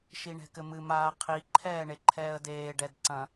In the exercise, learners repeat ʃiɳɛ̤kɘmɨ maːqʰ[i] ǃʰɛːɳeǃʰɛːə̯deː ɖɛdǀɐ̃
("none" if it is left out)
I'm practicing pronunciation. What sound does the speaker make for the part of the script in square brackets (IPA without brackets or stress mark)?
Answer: i